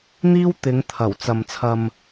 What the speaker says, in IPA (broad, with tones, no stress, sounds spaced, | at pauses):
n̪ iː˥ w t̪ ɪ˨˧ ŋ t̪ʰ ɐ˨˩ w t͡s ɐ˨ m t͡sʰ ɐ˨ m